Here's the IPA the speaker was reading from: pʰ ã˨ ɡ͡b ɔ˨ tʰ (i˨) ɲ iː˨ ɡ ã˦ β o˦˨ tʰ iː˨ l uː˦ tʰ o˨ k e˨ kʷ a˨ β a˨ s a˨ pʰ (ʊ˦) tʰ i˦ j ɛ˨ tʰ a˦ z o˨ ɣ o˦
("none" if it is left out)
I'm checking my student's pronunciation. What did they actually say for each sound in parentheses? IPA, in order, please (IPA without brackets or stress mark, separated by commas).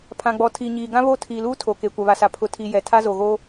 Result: i˨, ʊ˦